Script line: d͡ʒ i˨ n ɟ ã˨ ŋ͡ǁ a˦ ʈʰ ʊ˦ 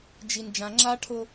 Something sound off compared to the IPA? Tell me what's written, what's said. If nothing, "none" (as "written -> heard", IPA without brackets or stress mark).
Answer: ɟ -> d͡ʒ